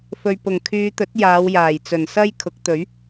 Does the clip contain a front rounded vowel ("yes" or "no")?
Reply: yes